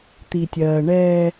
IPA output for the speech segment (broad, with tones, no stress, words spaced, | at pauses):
t̪i˨tʲɜː˨ ɳɛː˦